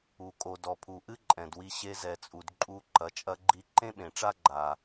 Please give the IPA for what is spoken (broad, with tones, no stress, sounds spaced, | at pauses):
u˩ kʼ o˩ d ɔ˩ pʰ u˩ ʔ ɨ˥ ǃʼ ɛ̃˩ d w i˧ ɕ e˧ z ɛ˩ t͡sʼ u˩ d ǃʼ u˧ ǃ ɐ˩ t͡ʃʼ ɐ˧ ɡ͡ǃ i˧ ǃ ẽ˥ ɓ ẽ˩ ʈ͡ʂ a˥ ɡ͡ǃ a˩